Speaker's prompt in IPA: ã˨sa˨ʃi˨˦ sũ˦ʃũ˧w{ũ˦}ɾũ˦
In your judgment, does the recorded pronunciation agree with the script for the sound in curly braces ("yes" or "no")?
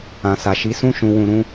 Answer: no